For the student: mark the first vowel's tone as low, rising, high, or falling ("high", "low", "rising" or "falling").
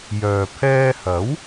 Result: low